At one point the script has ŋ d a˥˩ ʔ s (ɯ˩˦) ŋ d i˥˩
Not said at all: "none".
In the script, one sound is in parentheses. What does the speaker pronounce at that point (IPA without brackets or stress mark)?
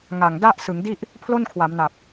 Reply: ɯ˩˦